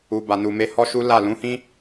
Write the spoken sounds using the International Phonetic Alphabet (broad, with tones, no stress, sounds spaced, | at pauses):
u˨ b a˨ n u˨ m e˧ h ɔ˦ ʃ u˦ l a˦˨ l ũ˨˦ h ĩ˦